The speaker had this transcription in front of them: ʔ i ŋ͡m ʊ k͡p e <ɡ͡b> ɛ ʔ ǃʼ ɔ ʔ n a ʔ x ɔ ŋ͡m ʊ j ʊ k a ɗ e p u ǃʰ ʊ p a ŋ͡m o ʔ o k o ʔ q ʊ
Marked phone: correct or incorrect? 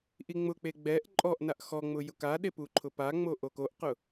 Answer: correct